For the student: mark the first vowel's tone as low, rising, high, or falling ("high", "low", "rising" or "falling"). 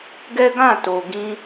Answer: high